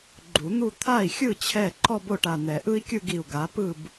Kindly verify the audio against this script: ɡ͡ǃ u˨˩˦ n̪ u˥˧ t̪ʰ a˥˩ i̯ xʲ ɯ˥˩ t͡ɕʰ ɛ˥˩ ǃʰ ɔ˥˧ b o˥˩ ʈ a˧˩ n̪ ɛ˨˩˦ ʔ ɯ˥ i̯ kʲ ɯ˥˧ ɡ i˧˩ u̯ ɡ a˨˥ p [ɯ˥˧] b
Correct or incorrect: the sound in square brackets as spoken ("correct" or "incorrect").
correct